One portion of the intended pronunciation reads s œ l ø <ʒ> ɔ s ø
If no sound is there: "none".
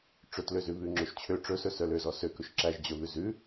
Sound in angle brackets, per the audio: z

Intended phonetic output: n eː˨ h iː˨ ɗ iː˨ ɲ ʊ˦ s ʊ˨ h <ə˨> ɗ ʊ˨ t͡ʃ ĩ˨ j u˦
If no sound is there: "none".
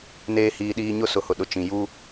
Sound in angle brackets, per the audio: ʊ˨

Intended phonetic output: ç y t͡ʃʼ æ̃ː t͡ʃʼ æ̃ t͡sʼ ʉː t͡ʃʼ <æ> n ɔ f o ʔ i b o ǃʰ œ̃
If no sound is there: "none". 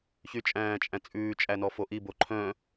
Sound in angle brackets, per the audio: æ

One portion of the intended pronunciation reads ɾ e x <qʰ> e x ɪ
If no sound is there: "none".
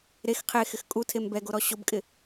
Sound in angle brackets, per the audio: qʰ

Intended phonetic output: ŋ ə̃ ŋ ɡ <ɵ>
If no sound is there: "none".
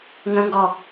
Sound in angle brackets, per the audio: ɔ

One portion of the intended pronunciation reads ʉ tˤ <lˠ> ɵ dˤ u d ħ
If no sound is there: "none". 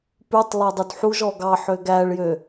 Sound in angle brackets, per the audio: lˠ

